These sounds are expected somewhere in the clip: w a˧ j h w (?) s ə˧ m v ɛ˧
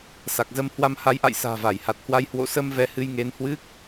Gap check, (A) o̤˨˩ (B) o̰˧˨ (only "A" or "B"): B